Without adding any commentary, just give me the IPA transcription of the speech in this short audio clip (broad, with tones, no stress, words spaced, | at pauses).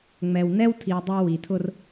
ŋ͡mɛ˨w nɛ˦wtʰi˨w dˤʌ˦ wi˨tʰʊ˦r